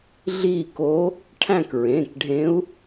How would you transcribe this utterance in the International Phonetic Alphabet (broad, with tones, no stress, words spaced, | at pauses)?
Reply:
ɮiː˦˨ko˧˥ | ʈʰæ̃˦˨kɹẽː˩˧˩kɖʱẽ˧˥u̯